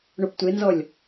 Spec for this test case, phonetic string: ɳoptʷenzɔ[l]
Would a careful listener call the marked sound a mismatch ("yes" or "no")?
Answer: yes